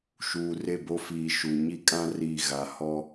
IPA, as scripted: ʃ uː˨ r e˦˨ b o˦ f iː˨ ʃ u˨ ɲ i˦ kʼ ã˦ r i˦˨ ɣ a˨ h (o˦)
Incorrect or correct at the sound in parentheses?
incorrect: ɔ˦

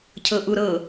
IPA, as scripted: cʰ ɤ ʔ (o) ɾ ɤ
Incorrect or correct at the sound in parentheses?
incorrect: u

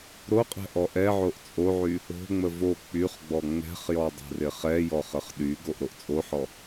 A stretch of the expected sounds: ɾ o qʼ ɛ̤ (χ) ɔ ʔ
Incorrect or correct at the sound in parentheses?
incorrect: ʔ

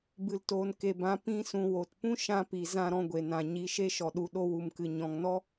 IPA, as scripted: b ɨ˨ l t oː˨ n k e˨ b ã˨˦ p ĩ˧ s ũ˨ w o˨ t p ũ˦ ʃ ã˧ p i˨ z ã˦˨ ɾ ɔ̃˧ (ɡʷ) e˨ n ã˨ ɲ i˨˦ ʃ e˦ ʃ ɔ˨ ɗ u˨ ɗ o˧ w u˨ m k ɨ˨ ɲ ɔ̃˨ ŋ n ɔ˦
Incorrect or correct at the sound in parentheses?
correct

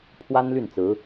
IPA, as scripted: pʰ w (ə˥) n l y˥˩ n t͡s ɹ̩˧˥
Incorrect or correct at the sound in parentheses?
incorrect: a˥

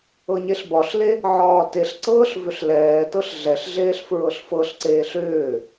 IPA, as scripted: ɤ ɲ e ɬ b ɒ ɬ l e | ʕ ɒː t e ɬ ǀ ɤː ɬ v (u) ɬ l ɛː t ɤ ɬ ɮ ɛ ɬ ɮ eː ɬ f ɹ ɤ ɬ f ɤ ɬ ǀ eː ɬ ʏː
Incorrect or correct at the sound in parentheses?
incorrect: ʏ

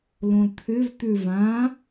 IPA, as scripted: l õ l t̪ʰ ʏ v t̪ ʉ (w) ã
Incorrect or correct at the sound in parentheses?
incorrect: v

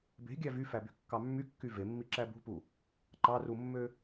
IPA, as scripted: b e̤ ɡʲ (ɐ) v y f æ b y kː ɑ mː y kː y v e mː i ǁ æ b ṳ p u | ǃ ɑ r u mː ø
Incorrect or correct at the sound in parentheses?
incorrect: æ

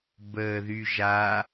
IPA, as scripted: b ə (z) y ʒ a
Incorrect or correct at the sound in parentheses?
incorrect: ð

